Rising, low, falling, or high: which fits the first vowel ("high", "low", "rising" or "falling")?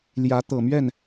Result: rising